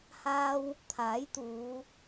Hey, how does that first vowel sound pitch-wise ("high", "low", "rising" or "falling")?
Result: high